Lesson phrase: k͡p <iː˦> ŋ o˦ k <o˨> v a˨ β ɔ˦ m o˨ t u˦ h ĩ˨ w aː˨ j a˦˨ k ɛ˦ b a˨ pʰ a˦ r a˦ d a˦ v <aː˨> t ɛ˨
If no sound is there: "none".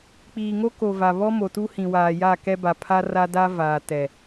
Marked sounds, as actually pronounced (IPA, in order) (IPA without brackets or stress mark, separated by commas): iː˨, o˨, aː˨